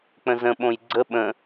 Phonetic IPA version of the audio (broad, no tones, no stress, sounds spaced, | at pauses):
k͡p ə̃ z ə̃ ɓ õ j ɡ͡ǀ ə ɓ ə̃